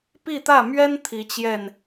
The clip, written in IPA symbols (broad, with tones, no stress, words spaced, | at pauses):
pi˥˧t̪ä˥˩mɥɛ˥n t̪ʰi˧˥t͡ɕjɛ˥˩n